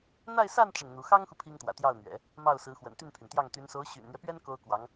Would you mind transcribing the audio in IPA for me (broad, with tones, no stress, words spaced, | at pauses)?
n̪a˥˧ɪ̯ sa˥˧n ʈ͡ʂə˥˩nn̪u˧˥ xɑ˥ŋxu˨ pʰi˥ŋt̪wä̰˨˩t̪jɑ˥˩ʊ̯n̪ɥɛ̰˨˩˦ | mɑ˥˩ʊ̯sɹ̩˧˥xwə̰˨˩n t̪y˥˩npʰy˩nt̪jɑ˥˩ŋ t̪y˧˥n so˧˥ʊ̯ ɕy̰˨˩nn̪ɥɛ˦pɥɛ˥n ko˥ʊ̯ kwɑ˧˥ŋ